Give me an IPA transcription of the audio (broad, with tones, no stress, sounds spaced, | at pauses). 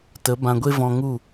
t ə˨˦ b ã˧ ɡʷ e˦ v ɔ̃˧ ŋ u˦˨